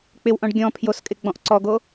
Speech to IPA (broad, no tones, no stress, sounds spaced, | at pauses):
k͡p ɪ w ʔ ɔ̃ ɖ ɡʲ ɔ̃ pʰ j o s kʼ ɪ ɡ͡b ɔ̃ ʔ ǀ ɔ ɡ o